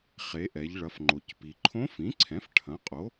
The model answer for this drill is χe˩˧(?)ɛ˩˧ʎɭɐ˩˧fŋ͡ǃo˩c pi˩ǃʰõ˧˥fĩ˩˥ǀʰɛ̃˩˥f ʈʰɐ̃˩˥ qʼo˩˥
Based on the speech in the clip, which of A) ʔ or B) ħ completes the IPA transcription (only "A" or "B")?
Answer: A